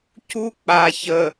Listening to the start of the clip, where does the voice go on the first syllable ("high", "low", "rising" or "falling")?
high